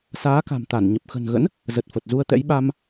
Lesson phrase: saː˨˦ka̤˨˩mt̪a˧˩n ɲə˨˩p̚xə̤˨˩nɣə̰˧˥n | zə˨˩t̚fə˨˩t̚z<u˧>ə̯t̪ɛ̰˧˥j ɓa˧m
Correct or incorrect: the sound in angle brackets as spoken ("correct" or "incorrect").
correct